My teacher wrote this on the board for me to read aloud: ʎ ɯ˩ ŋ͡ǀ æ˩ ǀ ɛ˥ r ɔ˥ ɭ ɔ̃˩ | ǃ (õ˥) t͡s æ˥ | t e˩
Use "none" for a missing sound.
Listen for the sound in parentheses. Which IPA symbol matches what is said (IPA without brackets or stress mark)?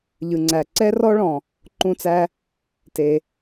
ũ˥